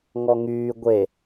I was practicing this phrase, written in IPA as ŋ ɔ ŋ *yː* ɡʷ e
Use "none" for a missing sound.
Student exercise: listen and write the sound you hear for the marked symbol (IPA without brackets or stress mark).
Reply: yː